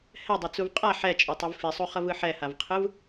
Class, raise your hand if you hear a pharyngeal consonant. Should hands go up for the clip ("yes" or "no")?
yes